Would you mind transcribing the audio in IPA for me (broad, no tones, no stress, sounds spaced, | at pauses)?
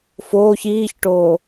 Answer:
f oː ç iː ç ʈ oː